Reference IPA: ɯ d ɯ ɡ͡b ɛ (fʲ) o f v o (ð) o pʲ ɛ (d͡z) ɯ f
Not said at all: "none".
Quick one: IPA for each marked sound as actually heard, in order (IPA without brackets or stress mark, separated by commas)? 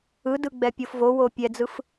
pʲ, w, d͡z